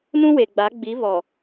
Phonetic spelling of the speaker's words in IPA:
nũ˦we˨ɡ͡ba˨˦ ɡ͡bi˨˦βɔ˨

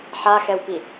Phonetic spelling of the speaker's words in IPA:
ħaxɛwpi

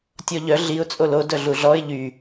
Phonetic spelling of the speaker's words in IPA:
tʲɔʎœ ɮiʊ̯ t͡sʼolo dœɮuɮɔɪ̯ ʎy

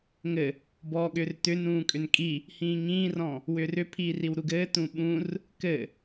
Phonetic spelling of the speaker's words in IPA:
ŋɘ | bɔːɠʏːrtʏn ũːkʼʏnkʼi | hĩːŋĩːrɔ̃ | wʏːrʏpʰiː riwɾuɡɘː tũɓũr | kɘ

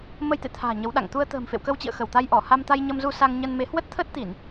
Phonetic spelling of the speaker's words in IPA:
mə˧jt̪ḛ˧˨t̪ʰa̤ː˨˩ ɲə˨˦wɗa̰˧˨ŋ t̪u˧ə̯ t̪ə̤ː˨˩mfḛ˧˨wkə˧wt͡ɕḭ˧˨ə̯ xə˧˩wt̪a˧jʔɔ˧˩ ha˧mt̪a˧jɲə˧mzu˧ sa˧ŋɲə˧nme˨˦ hwə˦˥t̚t̪ʰə˦˥t̚t̪i˧˩˨n

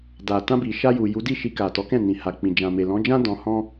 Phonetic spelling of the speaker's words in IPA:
da˨ tã˧bi˨ ʃa˧ju˨ju˨˦di˦˨ ʃi˧ka˨tɔ˨˦kɛ̃˦˨ nĩ˨ha˨k͡pĩ˨ d͡ʒã˨me˨lɔ̃˨˦d͡ʒã˦ dɔ̃˧hɔ̃˦

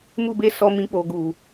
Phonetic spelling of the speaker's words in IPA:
mu˦be˦sɔ˧mĩ˧ k͡po˨ɡu˨

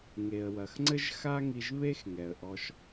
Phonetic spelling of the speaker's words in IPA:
ŋe˩ə̯wɐ˩xŋ͡ǀɘ˥ʒ xa˥ŋi˧ʒβe˥x ŋɛ˩ə̯ʔɔ˧ʃ

